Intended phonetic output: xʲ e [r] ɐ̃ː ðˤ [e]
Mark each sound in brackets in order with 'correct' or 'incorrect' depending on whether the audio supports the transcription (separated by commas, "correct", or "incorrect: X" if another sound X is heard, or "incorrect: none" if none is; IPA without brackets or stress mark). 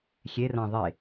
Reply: correct, correct